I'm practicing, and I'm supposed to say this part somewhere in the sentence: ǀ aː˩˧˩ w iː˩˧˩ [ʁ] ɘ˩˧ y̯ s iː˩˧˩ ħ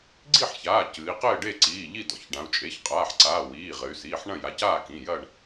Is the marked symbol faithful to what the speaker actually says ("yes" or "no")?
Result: yes